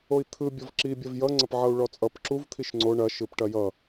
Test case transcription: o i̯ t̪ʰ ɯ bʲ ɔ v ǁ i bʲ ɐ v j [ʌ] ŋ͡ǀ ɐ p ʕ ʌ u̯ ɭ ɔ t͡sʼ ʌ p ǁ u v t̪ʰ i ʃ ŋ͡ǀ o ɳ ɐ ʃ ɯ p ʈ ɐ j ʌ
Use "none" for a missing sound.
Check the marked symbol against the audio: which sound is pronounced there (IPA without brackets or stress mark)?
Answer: ʌ